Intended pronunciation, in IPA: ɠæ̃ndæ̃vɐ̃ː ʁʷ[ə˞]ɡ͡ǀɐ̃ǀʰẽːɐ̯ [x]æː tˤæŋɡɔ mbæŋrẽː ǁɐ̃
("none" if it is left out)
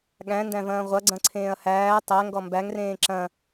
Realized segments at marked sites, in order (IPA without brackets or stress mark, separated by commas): ɐ, h